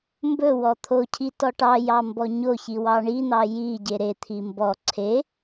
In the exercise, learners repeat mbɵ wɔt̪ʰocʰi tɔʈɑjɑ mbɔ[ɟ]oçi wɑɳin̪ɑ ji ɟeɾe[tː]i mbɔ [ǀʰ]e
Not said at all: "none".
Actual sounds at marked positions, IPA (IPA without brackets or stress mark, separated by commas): ɲ, t̪ʰ, ǀʰ